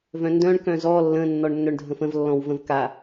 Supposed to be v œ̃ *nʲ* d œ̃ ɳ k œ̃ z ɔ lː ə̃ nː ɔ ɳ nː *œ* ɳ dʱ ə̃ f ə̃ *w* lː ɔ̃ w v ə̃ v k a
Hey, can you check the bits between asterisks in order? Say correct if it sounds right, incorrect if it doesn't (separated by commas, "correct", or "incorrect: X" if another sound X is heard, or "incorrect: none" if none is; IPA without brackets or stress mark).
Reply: incorrect: n, correct, incorrect: v